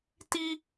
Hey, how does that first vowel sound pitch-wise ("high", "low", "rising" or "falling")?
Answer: high